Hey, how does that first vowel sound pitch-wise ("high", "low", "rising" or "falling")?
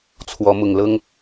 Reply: rising